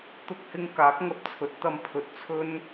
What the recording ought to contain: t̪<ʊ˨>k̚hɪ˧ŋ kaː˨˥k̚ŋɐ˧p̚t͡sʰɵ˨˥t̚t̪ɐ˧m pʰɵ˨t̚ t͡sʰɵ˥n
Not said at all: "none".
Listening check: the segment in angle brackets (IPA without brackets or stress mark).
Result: ʊ˧